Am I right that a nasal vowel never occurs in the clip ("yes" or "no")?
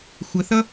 yes